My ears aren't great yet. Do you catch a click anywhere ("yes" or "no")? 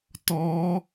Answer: no